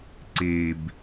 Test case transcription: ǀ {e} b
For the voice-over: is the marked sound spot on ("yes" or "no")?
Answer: yes